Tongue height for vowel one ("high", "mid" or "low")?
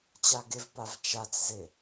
low